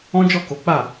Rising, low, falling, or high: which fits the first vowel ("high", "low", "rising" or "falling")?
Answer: high